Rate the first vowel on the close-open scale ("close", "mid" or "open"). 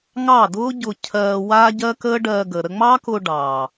open